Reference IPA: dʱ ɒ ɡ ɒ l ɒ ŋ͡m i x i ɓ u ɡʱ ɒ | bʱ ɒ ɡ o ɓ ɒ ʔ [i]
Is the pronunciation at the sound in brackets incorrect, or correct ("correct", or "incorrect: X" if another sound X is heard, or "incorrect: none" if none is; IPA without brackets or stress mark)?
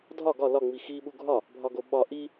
correct